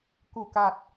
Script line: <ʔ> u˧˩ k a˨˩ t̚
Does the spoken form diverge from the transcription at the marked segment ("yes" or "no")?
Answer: yes